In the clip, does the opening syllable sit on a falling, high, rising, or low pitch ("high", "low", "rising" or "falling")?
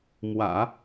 low